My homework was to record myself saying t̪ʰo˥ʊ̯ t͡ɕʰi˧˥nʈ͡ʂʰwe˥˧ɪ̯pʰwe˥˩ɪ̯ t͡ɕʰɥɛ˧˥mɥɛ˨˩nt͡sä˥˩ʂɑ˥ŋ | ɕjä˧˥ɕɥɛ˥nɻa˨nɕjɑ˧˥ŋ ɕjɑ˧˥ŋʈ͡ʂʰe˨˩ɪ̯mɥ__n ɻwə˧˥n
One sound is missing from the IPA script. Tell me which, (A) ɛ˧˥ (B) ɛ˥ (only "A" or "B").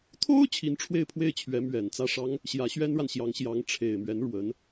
A